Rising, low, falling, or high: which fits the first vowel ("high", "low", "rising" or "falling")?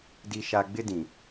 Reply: high